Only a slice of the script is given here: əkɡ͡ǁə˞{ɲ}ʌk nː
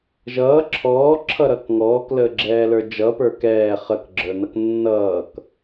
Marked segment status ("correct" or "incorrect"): incorrect